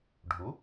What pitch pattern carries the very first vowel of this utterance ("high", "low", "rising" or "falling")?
rising